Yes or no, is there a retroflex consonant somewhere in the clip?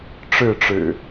yes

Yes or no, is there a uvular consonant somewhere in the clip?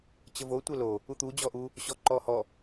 no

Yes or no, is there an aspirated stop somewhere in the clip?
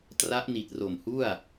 no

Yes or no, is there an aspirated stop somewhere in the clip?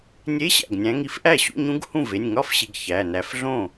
no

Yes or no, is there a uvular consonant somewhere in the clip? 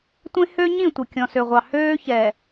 yes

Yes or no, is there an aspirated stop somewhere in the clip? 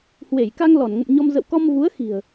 no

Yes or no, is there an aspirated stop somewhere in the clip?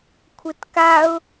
yes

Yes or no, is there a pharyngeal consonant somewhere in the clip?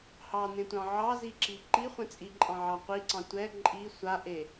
yes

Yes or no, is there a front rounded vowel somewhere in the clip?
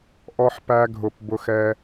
no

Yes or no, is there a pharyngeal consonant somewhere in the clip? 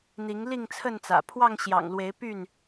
no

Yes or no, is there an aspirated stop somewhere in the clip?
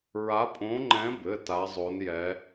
no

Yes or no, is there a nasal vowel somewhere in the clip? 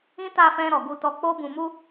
yes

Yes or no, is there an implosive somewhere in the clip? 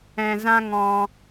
no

